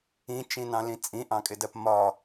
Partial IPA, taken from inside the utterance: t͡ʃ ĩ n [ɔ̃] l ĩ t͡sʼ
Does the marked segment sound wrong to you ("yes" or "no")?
yes